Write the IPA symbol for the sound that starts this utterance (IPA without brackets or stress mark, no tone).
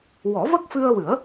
w